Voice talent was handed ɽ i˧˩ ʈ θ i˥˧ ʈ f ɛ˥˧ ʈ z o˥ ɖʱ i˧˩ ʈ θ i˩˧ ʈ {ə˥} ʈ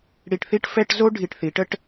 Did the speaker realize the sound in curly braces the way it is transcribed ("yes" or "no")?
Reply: yes